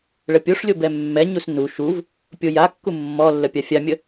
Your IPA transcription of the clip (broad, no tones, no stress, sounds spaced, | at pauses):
ɭ ə pʲ o ʂ lʲ o b ɛ mː ɛ ɲ u s n u ʃ u v | pʲ o j a kː u mː ɔ lː ə pʲ a fʲ a mʲ ə